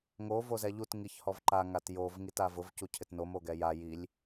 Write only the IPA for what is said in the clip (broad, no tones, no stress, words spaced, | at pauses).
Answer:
ŋo vozɛʎut ŋiçhɔvǃa ŋatjov ŋitavʊv cucʰɪtnom oɡɛja jilʲ